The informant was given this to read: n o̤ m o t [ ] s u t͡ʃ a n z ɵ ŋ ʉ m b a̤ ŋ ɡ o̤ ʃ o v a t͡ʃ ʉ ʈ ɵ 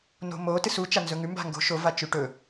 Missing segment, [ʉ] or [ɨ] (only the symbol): ɨ